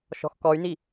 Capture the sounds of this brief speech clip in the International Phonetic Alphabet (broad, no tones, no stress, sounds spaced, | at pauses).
ʃ ɔ̤ x k ɔ y̯ n i